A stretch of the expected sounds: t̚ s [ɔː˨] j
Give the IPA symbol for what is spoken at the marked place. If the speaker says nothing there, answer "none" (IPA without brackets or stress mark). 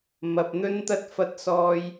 ɔː˧